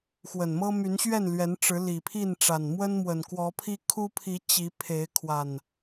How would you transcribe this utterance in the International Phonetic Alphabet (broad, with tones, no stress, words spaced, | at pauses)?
xwə˨˩nmɤ˦ my˨˦nɕɥɛ˥˨nlɥɛ˨˦nʈ͡ʂɻ̩˨˦ li˨˩pʰi˥˨nʈ͡ʂa˨˩n mwə˦nmwə˨˩nkwɔ˨˦pʰi˦ kʰu˦ pʰi˨˦ t͡ɕi˨˦pʰe˨˦ɪ̯ kʰwa˨˩n